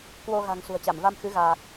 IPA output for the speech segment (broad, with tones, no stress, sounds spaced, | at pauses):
k w o˧ ɣ a̤˨˩ ŋ s ṳ˨˩ ə̯ t͡ɕ a˧˩ m v a˧ m x ɨ˨˦ ɣ aː˨˩ k̚